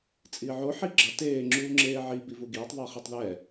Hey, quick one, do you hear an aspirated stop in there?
no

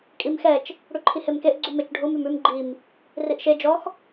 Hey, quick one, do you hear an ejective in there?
yes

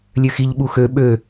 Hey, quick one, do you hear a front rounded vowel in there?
yes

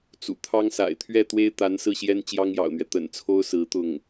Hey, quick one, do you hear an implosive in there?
no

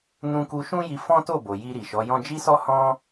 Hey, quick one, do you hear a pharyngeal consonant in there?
no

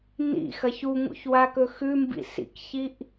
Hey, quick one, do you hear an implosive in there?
no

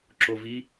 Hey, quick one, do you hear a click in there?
yes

